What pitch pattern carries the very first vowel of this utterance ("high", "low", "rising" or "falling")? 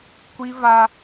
high